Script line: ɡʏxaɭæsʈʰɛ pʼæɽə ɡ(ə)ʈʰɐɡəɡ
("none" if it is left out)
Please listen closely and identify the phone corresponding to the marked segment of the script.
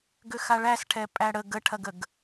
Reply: ə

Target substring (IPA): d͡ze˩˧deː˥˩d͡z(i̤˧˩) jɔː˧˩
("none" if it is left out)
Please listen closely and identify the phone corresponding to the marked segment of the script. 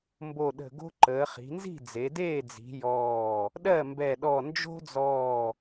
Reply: i̤˩˧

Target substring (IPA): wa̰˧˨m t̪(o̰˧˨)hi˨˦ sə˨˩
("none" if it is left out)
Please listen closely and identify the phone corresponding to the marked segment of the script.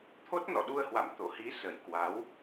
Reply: o̰˧˨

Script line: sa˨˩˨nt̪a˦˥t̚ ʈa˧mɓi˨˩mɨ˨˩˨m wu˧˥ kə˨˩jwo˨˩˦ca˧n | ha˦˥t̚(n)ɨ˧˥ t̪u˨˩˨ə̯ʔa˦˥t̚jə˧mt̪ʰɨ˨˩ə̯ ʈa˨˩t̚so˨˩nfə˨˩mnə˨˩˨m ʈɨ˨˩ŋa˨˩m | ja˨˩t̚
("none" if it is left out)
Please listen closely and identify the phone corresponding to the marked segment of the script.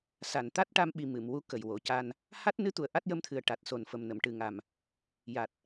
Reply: n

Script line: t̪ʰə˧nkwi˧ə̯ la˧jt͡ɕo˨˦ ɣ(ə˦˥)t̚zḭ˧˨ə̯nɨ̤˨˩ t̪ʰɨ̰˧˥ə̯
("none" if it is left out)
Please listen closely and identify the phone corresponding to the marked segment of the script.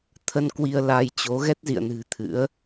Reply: ɛ˦˥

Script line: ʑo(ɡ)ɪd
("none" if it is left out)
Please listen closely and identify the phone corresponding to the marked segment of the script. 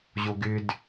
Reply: ɡ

